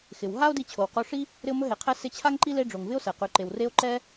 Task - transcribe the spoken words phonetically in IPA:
xɪ˩w ɦa˥o̯di˧ t͡ɕʰo˩wqo˧ʂi˥ | ɾɪ˧o̯mɵ˧ɦe˩qʰɛ˧ sɪ˧ t͡ɕʰa˥ŋǃi˥ le˧ ɖ͡ʐo˩ŋvɪ˥o̯sɛ˩qʉ˩ ǃe˩wre˧o̯ ǃɛ˥

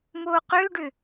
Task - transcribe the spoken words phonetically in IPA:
moːqʏːɖʏ

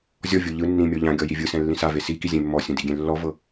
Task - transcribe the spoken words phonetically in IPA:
zʲɔvʲo ʎɯ nːĩmʲɔ ʎãɡʲɔ jivʲɯsɛ̃ lːĩsave siki zʲẽmːɔsʲũ diɡʲẽ lːɔvɤ

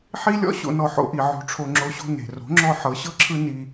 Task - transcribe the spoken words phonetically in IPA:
ħi˦lʲɔ̰˦ ɕo̰˧nɔ˧ ħo̰˧ʔi˨ ʕo̤˧ʈ͡ʂʰo˧ŋ͡ǁo˧ɕo̤˦ ne̤˨ ro̤˨˦ŋ͡ǁɔ˧ ħɤ˨˦ɕɤ˦ǁʰɯ˦ ni˧

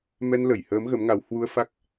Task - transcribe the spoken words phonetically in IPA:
mɛ˧nlə˧˩jhəː˨˦m ɣə˨˦mŋa˨˦w hwu˧ə̯fa˦˥k̚

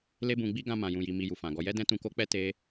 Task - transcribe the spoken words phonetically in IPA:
le˦bũ˧ɡ͡bi˦ ɡã˧ mã˧jũ˧ji˧ mi˧ju˨fã˨ɡɔ˧ jɛ˦dɛ̃˦ tũ˧ko˦k͡pɛ˦ te˦

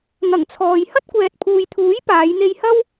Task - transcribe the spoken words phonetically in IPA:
ŋɐ˨˩ŋt͡sʰɔː˨j hɐ˥t̚kʷɛː˨t̚pʰuː˨jt̪ʰuː˨˥j paː˨˧jn̪e˧jhɐ˥w

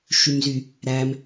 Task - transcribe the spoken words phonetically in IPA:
ʃymzy | ɾæm

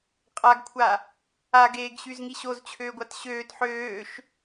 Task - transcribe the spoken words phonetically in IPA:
qʼaɡkʷʰa | aɡeːɡɕyzŋi ɕozt͡ɕʰøːɡʷat ɕøːt ħøːʃ

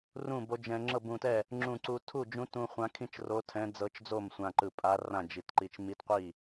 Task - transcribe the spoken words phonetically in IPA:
rũ˥˩bo˧˥d͡ʒɛ̃˧ ŋ͡ǁɤ˥˩bũ˧˩tɛ˥˩ | ŋ͡ǁũ˧˩ǀu˧ tʰu˥˩d͡ʒũ˧˥tũ˧ χʷã˧˥kʰĩ˥˩t͡ʃro˧˥tʰɛ̃˧˥ d͡zɤ˧˥t͡ʃd͡zo˥˩m sʷã˧ǃɯ˧˩pʼa˧˥ rã˥˩d͡ʒi˧˩tǃi˧t͡ʃ mi˧˥tqʷi˥˩

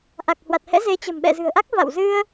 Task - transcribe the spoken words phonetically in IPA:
ʔa˨˩k̚hwa˨˩t̚hɛ̰˧˥ ze˨˦t͡ɕə̤˨˩m ɓɛ̰˧˨zɨ̤˨˩ə̯ʔa˦˥k̚ va̰˧˨wzɨ˧ə̯

